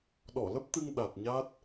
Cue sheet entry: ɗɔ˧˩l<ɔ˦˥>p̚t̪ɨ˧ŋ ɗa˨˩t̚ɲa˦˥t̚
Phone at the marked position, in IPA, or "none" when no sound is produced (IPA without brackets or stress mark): ə˦˥